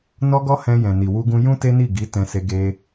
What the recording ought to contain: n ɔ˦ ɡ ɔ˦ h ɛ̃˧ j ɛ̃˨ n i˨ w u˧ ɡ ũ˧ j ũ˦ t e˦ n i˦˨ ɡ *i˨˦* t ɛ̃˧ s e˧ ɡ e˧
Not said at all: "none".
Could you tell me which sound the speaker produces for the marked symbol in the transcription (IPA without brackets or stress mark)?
i˨˦